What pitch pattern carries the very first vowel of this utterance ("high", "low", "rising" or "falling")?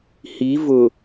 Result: rising